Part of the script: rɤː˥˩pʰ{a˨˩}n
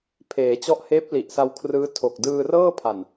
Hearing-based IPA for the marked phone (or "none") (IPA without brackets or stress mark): a˨˩